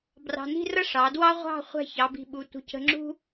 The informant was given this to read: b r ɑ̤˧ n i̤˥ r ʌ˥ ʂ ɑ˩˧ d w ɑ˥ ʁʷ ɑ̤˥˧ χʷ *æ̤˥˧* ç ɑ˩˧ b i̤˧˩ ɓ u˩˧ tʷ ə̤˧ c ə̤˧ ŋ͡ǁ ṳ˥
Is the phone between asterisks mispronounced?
no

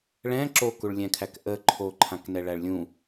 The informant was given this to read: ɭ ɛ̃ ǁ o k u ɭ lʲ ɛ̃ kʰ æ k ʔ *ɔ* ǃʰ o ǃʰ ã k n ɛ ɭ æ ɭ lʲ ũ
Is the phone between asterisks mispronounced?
yes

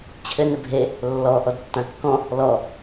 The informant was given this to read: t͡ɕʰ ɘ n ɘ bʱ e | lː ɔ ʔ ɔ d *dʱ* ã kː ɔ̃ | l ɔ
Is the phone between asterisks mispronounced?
yes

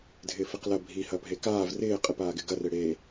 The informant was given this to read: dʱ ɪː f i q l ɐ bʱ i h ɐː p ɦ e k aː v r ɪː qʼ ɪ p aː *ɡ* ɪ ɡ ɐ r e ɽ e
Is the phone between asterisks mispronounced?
no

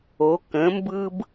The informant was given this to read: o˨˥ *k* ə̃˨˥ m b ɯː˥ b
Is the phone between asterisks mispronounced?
no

